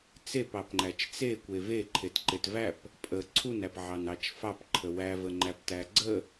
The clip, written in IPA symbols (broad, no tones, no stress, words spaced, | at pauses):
t͡sepɑpŋ͡ǃæt͡ʃ t͡sekʷe veǃʰetǃet væp | pʼə ǀʰunæpʕɑnɑt͡ʃ fɑpǃʰə wævəŋ͡ǃæptæ ɡ͡ǀə